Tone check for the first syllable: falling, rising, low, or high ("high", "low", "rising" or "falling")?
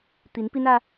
rising